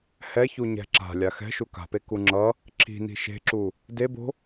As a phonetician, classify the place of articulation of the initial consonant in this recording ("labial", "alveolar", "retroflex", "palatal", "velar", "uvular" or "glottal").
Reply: glottal